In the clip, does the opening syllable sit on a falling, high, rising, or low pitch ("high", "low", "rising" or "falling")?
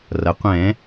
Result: low